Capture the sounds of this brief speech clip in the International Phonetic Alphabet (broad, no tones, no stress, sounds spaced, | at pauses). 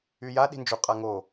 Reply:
y j a ɗ i̤ n d͡ʒ u qʼ a ŋ o